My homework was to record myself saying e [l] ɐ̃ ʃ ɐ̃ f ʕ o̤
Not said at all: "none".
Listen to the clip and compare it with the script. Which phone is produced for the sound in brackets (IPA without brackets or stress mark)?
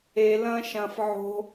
l